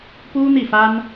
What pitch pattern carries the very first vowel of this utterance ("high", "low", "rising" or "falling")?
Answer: high